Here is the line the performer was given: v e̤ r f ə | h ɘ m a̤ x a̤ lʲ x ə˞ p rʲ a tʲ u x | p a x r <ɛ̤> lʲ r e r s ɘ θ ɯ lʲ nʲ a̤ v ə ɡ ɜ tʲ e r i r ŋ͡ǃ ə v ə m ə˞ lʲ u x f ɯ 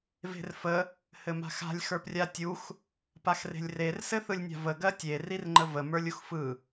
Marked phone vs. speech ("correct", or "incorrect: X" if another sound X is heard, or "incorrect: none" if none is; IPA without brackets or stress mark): incorrect: e̤